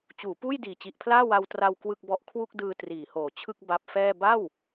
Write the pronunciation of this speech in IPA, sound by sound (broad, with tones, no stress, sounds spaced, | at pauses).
t͡ɕ uː˩˦ p uː˥˩ j d iː˨˩ t͡ɕ i˨˩ ʔ pʰ l aː˥˩ w a˧ w t r a˧ w k w ɯ˥˩ k̚ b ɔ˥˩ ʔ kʰ w u˥˩ k̚ d ɯː˧ t r iː˩˦ h oː˨˩ t͡ɕʰ ɯ˥˩ k̚ b a˦˥ p̚ f ɛː˥˩ b a˥˩ w